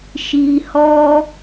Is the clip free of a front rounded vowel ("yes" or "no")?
yes